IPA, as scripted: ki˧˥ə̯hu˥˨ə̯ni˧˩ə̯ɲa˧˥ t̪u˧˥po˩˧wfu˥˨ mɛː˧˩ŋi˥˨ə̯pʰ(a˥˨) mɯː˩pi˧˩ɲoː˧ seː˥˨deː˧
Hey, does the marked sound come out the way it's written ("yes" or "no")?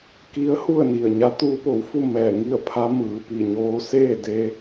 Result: no